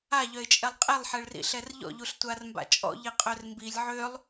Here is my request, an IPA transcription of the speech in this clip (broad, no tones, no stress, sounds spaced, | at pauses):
a ʎ œ ɪ̯ t͡ʃʼ ɛ lˠ qʼ e lˠ ħ ɛ ɭ r ḭ ɬ ɛ r ʎ ɔ̰ ʎ u ɬ tʷ a r m b a̰ t͡ʃʼ ɔ̰ ʎ i qʼ œ r m b i lʲ ʕ ø lˠ